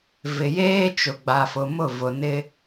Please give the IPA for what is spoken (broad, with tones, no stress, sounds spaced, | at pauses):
v ɪ˨ j eː˦ t͡ʃ ʊ˨ ɡ͡b a˨ f ʊ˨ m ʊ˦˨ v ʊ˨ n ɪ˦